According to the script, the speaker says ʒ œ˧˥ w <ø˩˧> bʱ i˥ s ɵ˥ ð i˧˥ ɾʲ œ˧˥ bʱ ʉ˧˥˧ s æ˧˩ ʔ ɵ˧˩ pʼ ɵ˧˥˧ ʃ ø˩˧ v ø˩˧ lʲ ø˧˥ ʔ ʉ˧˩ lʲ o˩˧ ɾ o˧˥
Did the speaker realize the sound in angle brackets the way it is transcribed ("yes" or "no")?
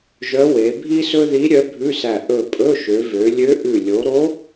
no